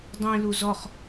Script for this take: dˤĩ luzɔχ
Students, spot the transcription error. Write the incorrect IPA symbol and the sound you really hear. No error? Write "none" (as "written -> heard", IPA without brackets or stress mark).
none